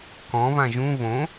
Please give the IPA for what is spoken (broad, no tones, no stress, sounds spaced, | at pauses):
k ɔ̃ β ã ʒ ũ β õ